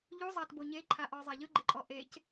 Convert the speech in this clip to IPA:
ʎuzˤatbo ɲeǃʰaʔɔzˤa ʎɯɡ͡ǃeǃʼɔ ʔec

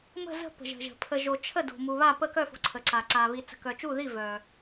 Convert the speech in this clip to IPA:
mə̤˧˩zə̤˧˩ pə̤˩ʒə̤˩ʒə̤˩ pʰə˩ʒo˩t͡ʃʰə˧˩ do̤˩mu˩ βa˧˩pə˧˩kœ˧˩fo̤˩ ǀʰə˩ǀa˩ǀa˩ βi˩t͡sə̤˩kœ˩t͡ʃu˧˩ ði˧˩ vœ˩

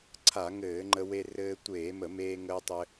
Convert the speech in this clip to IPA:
ǀʰa˧˩˧ŋɘː˧˩˧ŋ͡ǃə˧ we˧ rɘː˧ tʷeː˧˩˧mə˧˩˧ meː˧ŋəː˧tˤɘ˧

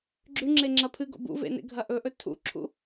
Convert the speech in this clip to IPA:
ɡ͡ǁʉŋ͡ǁe ŋ͡ǁɐpʰɨɡo̰ bṵvḛ nḛɡʱɐʔɵʔɵ tʰṵǁʰṵ

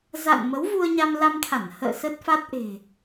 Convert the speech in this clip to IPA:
za̰˧˨n mə˨˦wvu˧ə̯ɲa˧m la˧mt̪ʰa˧˩n hə̰ː˧˨ sə˦˥t̚fa˦˥t̚ ʔe̤˨˩

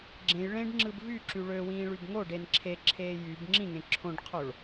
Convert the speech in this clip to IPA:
ɡ͡ǁẽj ɭẽɖŋ͡ǁɯb vyǁy ɭøwĩːɭyb ŋoɖen ǁʰeǁʰeː jyb ŋ͡ǁĩŋẽ ǁʰõɖqʰoɭ

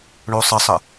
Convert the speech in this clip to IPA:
ɳosˤəsˤə

